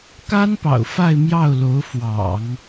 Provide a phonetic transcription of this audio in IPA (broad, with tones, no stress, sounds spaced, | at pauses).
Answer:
k a˥ n p ɑ̰˨˩ ʊ̯ f a˥˧ ɪ̯ m j ɑ˥˩ ʊ̯ l o˧˥ ʊ̯ f w ɑ̰˨˩˦ ŋ